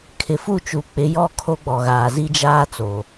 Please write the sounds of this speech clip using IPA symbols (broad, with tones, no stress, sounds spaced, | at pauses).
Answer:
kʰ ɪ˨ f u˦˨ t͡ʃ u˨ k͡p ɪ˨˦ j ɔ˦˨ kʰ o˦ ɡ͡b ɔ˨ ɣ aː˨ z i˦ d͡ʒ aː˦ t͡s o˨